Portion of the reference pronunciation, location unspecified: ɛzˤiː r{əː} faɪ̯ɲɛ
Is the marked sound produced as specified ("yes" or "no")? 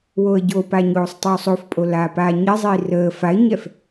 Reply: yes